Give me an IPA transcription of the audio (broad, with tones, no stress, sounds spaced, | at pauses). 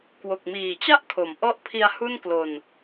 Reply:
k w o˨˩ k̚ m iː˨˩ t͡ɕ a˥˩ ʔ kʰ o˩˦ m ʔ ɔ˦˥ ʔ pʰ i˧ a̯ h u˥˩ n k l o˧ n